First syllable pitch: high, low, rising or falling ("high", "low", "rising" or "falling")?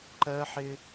high